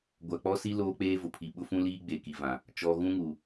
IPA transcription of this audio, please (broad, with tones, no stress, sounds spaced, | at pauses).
ɡʷ a˨ k͡p ɔ˦ s i˦ l oː˦ k͡p eː˦ v ʊ˨ pʰ i˨ ɓ ʊ˦ f ũ˦ l iː˦ ɡ͡b e˨ k i˨ v ã˨ | t͡ʃ ɔ˨ ɣ ũ˦ ŋ u˨